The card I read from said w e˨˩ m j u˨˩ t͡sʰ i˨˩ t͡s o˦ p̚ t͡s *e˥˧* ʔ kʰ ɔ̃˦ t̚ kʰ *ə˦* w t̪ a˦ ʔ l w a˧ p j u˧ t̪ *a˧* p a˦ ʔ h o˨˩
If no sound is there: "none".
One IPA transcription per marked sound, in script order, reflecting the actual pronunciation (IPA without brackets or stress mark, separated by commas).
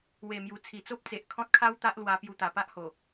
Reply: e˨, a˦, a˨˩